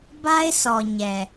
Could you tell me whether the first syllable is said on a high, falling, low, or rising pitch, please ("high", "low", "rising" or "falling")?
high